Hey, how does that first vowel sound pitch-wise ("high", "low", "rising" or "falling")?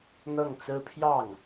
falling